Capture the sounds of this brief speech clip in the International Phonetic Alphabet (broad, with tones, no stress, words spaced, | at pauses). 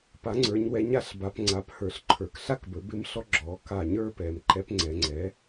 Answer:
pa˩˥ŋ͡ǀə˞˩˧ɲwɛ˩˥ɲ a˩˧ɬba˩˧p ŋ͡ǀa˩˥phə˞˩˧ɬǃʰə˞˩˧k ɬa˥˧kbə˞˩˥bɪ˧˥mɬɔ˧˥ ɡ͡ǁɔ˩˧ ka˧˩ ɲə˞˥˧pɛ˩˧m ǃɛ˧˥p ŋ͡ǀɛ˩˧ŋ͡ǀɛ˩˥